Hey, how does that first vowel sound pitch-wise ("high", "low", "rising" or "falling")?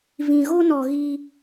low